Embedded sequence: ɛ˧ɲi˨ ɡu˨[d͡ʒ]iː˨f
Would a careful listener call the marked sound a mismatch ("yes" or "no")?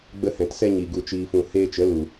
yes